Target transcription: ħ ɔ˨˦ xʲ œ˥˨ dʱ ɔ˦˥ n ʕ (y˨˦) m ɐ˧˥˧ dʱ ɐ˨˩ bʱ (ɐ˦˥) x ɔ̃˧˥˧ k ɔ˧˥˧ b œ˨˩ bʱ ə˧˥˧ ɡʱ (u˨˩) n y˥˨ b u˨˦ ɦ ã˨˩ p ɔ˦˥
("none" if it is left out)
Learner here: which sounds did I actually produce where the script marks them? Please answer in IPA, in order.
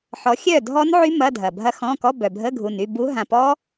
y˦˥, ɐ˦˥, u˨˩

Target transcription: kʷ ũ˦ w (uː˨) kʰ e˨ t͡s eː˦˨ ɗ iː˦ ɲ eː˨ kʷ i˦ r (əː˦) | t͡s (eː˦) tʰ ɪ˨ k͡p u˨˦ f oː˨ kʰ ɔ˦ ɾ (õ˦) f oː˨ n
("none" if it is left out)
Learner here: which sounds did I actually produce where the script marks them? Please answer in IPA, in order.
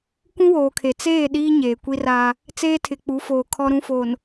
oː˨, aː˦, eː˦, ũ˦

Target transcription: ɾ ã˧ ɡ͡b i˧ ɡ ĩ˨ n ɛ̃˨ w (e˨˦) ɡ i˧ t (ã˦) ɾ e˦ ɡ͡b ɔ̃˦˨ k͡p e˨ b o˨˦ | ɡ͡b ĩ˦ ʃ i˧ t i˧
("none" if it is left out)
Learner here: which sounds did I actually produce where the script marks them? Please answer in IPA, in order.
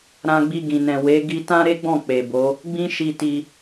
e˨˦, ã˦

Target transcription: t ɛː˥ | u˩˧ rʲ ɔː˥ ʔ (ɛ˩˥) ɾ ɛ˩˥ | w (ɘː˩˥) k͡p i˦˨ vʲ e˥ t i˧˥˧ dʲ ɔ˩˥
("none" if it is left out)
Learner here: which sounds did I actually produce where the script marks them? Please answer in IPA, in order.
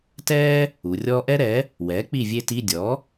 ɛ˥, ɛː˩˥

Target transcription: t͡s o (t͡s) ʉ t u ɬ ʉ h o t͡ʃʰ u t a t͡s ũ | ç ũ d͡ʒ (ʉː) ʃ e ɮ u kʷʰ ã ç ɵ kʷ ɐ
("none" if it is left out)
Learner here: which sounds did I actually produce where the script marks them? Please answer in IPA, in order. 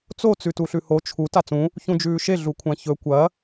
t͡s, ʉː

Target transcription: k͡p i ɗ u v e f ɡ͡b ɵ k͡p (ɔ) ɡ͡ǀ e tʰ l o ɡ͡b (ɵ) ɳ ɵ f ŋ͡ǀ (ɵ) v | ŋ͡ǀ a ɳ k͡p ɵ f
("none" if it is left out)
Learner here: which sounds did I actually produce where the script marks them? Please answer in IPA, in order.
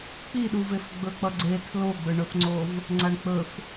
ʌ, ɵ, o

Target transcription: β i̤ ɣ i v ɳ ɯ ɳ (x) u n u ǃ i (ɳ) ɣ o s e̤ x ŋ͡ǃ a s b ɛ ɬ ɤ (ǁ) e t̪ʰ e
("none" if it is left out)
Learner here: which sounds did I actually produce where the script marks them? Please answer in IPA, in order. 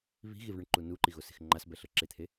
ǃ, none, ǁ

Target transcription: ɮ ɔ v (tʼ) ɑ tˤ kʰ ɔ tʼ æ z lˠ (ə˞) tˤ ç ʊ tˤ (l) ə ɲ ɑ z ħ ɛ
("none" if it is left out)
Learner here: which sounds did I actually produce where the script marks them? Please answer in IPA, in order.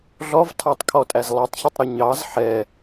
tʰ, ʌ, ɾ

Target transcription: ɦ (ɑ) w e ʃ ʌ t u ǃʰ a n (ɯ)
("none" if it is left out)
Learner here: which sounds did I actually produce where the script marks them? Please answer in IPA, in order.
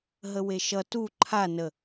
ə, ə

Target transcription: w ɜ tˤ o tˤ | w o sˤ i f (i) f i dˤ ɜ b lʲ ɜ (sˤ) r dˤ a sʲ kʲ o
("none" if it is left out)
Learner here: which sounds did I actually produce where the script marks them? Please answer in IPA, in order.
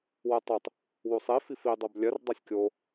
i, none

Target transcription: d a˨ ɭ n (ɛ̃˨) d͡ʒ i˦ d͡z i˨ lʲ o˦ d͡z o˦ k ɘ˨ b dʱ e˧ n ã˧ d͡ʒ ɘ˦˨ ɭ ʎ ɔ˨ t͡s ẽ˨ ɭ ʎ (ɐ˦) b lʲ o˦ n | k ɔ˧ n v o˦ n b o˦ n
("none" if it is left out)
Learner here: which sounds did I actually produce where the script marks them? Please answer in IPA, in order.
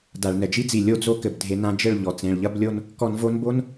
ɛ˨, ɐ˦

